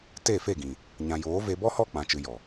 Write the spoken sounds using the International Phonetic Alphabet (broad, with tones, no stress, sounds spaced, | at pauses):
t e˦˨ f e˦˨ ɡ ĩ˨ | ɲ ã˨ j oː˨˦ v e˧ b ɔ˦ h ɔ˦˨ k͡p ã˨ t͡ʃ ɨ˨ j ɔ˨